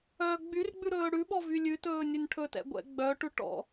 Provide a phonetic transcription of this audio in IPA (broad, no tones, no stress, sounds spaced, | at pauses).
œː ɡ͡b y r ɡ͡b ʉ ɾ ɵː ɽ ʉ ɓ ɔ v y lʲ ʉ t ɵː nʲ ɵ nʲ ʈʰ ɵ t ɛ̰ ɡʷ ɛ̰ ɡ͡b œ ʈ ʉ ʈ ɔ̰